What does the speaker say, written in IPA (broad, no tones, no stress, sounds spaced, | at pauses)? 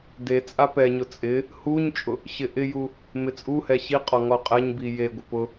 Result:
d e t͡sʼ a p ɛ ɲ ʊ t͡sʼ ɪ | h u ɲ t͡ʃʼ ʊ | ɕ ɪ ʔ ɪ j u | m ɪ t͡sʼ u h ɛ ɕ i qʼ ɔ ŋ ɔ qʼ ɛ ɲ b i j e ɡʷ ɪ p ʊ